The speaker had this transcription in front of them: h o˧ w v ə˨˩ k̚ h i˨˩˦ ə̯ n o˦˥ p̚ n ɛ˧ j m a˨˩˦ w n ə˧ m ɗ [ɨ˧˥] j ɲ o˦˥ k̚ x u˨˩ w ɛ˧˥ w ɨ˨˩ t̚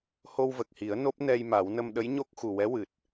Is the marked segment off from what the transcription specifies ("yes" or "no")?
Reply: yes